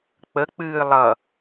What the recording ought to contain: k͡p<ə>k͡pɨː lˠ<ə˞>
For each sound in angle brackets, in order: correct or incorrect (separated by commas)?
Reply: correct, incorrect